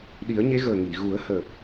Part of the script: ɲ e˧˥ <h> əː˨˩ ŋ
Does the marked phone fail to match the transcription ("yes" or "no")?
yes